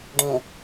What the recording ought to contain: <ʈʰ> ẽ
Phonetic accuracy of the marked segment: incorrect: ɖ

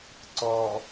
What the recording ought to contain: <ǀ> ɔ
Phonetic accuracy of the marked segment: correct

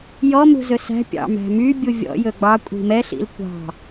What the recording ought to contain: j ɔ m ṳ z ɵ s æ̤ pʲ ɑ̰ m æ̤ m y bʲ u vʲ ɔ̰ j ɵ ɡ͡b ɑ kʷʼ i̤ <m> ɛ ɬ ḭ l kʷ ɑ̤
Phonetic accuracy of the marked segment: correct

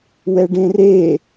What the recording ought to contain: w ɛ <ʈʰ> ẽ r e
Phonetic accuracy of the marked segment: incorrect: ɖ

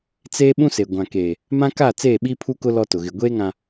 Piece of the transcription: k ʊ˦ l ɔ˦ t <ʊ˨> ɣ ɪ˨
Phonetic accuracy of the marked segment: correct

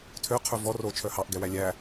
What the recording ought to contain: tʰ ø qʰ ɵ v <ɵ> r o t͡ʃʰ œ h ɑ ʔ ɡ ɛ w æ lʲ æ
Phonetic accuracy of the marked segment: incorrect: ɔ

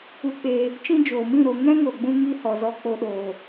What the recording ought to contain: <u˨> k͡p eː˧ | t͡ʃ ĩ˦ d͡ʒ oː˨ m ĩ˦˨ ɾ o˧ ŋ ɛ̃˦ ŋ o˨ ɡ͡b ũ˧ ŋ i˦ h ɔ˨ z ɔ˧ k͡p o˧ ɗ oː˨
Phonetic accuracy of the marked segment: incorrect: u˧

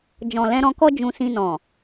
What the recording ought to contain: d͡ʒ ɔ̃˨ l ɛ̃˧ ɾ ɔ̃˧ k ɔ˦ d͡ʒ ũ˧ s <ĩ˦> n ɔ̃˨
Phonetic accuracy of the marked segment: incorrect: ĩ˧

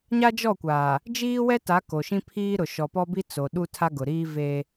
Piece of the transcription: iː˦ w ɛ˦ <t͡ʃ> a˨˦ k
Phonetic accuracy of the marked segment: incorrect: t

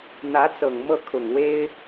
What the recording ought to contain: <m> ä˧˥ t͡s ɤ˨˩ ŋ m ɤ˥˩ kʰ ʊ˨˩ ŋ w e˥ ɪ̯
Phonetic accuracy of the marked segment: incorrect: n̪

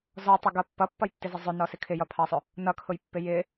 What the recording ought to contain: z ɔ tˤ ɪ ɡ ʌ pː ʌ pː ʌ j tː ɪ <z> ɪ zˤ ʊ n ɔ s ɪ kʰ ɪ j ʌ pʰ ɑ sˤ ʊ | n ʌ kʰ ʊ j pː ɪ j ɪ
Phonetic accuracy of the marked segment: correct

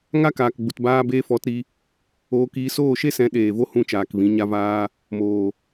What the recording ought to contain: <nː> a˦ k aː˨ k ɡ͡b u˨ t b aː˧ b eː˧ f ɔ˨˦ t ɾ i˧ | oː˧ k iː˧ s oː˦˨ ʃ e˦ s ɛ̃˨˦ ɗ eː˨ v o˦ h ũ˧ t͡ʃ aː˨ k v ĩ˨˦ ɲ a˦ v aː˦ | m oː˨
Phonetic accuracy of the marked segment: incorrect: ŋ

